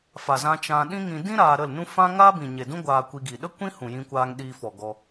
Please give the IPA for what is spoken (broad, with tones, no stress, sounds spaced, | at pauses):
f a˨ z ã˧ t͡ʃ ã˧ ɗ ĩ˦ ŋ ĩ˧ d ĩ˦ ɾ aː˧ ɾ ə˦˨ l n ũ˦ f ã˦ ŋ aː˦ b ĩ˨ ɲ e˨ d ũ˦ ɡʷ aː˧ kʷ i˧ ɡ i˨ ɗ ə˦ kʷ ĩ˦ h ũ˨ j ĩ˧ kʷ aː˧ ŋ ɗ iː˧ f ɔ˨ ɡ ɔ˧